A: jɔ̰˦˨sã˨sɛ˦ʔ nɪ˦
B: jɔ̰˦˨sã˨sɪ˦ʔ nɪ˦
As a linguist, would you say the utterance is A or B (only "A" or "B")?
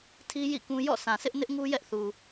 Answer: B